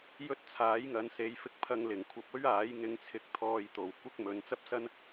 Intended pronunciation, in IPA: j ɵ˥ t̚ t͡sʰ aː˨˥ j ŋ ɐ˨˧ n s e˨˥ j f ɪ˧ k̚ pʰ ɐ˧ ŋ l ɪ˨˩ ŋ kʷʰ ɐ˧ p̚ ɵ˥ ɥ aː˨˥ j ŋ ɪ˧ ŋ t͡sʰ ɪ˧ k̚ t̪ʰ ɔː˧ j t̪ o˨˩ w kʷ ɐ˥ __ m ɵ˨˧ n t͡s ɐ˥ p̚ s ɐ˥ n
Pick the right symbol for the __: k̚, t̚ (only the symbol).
k̚